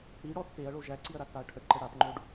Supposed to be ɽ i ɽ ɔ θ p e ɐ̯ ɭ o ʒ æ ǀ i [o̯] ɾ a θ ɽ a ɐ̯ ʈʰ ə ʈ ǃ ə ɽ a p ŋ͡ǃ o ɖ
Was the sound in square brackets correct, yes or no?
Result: no